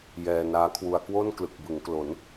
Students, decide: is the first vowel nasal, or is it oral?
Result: oral